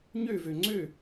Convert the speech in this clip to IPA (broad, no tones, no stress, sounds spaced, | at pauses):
ɲ ø v ø ŋ͡ǀ ø